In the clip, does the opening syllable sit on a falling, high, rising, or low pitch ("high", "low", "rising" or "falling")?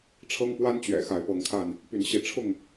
high